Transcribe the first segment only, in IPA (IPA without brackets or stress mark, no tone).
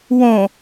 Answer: w